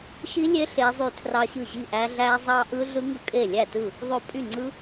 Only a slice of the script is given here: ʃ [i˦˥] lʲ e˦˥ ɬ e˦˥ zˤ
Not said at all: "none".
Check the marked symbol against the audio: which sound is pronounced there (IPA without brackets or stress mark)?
i˦˥